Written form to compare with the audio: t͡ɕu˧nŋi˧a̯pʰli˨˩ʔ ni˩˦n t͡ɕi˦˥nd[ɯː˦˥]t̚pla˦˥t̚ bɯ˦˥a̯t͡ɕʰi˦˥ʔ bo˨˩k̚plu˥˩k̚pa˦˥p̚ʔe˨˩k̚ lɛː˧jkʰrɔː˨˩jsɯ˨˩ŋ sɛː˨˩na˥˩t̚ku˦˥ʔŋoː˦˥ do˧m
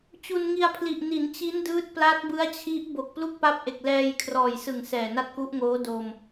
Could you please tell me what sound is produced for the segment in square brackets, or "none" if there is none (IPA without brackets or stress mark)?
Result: ɯː˦˥